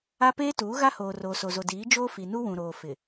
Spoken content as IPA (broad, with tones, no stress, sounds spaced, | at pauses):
a˦ p eː˦ t uː˨˦ ɣ a˦ h oː˨ r oː˨ s o˨ z o˨ d iː˨˦ d͡ʒ oː˦ f i˨ n u˦ w ũ˨ ɾ oː˨ f ɪ˨